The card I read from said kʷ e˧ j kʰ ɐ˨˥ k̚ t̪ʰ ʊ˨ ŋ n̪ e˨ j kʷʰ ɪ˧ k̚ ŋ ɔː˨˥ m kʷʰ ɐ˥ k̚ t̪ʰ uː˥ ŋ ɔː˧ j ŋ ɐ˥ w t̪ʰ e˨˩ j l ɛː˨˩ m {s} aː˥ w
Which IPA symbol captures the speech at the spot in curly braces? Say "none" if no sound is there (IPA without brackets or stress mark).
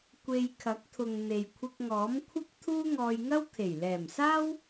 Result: s